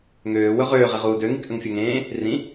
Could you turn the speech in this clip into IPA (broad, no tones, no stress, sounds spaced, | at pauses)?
ŋ øː w ɵ ʁ øː ʁ e ʁ uː d ø ŋ i k ʔ ə ŋ fʲ ɵ ŋ ẽː | r ĩ